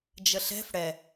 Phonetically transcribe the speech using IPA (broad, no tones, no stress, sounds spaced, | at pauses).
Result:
d͡ʒ ə ɬ ɛ̤ f ɽ ɛ